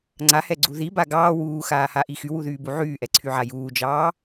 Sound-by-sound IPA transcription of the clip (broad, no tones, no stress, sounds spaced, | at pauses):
ŋ͡ǀ a h ɛ ɡ͡ǀ u ð i b a ɡ ɑː w uː x aː h a ʔ i x y w u ð yː b u ʕ yː ʔ ɛ ǀʰ y ʕ a j uː d͡ʒ ɑː